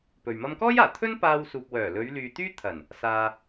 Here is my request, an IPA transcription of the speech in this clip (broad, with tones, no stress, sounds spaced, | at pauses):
p ɵ˨ ɥ m ɐ˥ m k ɔː˥ j aː˨˩ t̪ʰ ɵ˥ n p aː˧ w s uː˨ p̚ w œː˨˩ l ɵ˨˧ ɥ l yː˨ t̪ yː˥ t̪ʰ ɐ˨˩ n | s aː˧